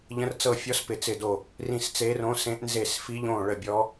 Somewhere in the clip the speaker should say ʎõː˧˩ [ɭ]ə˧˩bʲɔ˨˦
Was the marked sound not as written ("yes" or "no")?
no